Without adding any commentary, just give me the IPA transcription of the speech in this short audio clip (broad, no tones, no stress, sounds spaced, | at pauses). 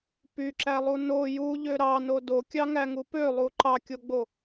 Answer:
p y ǁ æ lˠ u n o j u ʎ ø ɾ ɑ n o d o kʲ ɑ ŋ æ ŋ u p ø lˠ u ǃ ɑ kʲ o ɡ͡b o